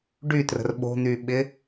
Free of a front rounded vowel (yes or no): no